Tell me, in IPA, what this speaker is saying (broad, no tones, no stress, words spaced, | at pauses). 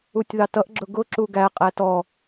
utʲðɑtʌʔ ɡ͡ǁʊɡʊ ǁuɡæ qʼætɔ